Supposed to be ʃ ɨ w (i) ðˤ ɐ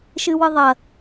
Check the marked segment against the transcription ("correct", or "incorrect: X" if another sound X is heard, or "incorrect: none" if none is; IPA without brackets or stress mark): incorrect: ɨ